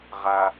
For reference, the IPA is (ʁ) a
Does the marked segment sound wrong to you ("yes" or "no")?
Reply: no